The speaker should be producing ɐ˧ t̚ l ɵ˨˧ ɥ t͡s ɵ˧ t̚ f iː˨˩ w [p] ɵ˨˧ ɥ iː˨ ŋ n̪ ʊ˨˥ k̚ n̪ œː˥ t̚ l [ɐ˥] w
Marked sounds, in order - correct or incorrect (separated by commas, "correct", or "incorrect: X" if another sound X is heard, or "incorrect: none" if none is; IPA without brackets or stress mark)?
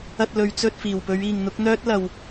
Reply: correct, incorrect: ɐ˨